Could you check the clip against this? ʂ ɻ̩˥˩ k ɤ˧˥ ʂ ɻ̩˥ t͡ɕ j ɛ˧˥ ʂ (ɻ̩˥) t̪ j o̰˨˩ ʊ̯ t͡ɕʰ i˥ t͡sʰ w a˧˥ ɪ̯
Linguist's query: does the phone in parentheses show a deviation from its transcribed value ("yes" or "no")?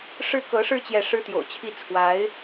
no